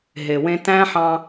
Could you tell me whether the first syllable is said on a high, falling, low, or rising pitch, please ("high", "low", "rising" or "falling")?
low